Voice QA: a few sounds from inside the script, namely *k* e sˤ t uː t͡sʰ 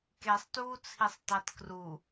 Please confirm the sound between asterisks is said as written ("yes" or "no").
yes